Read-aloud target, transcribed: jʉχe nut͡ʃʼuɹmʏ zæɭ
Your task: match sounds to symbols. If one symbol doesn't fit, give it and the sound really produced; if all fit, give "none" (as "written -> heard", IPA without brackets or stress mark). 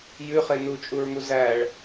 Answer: ʏ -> u